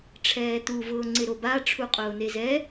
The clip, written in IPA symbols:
ʈ͡ʂʰ ɛː t̪ u v ʊː ŋ͡ǀ ɪ ɾ o b a ʈ͡ʂʰ u qʼ ʊː n̪ e z ɛ

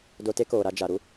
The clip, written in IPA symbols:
d o˧ t e˦ k oː˨ ɾ a˧ d͡ʒ a˨ ɾ u˦

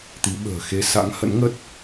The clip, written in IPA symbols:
t̪ i˨˦ ɓ ə̤ː˨˩ x e˧ s a̰˧˥ ŋ h ə̰˧˥ n ŋ ə˦˥ t̚

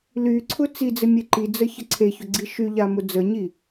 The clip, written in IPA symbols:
l y ǀʰ ʊ t͡s i d͡z ɘ mʲ e ǃ i d͡z ə ç ə ǀʰ e ç ʊ ɡ͡ǀ i ʃ y ʎ a m ʊ d͡z ə ɲ i

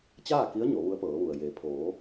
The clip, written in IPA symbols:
t͡ɕ aː˥˨ k i˧˥ ə̯ ɲ o˩˧ ʋ u˧˥ ə̯ p ɤː˩˧ ʋ u˩ ə̯ j e˩ pʰ oː˩˧

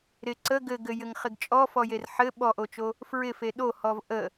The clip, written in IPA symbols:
ɾ ɪ ǀ ə ɡ ɘ ɡ ɘ j ɘ ŋ χ ɪ ɡ t͡ʃʼ ɔ f ɔ j e r ħ ɘ ɓ ɔ ʔ o t͡ʃ o | f ɹ ɪ f e ɗ o h ɔ v ʔ ə

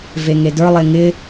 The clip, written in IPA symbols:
v e ŋ e d ə˞ lˠ e ŋ ɪ

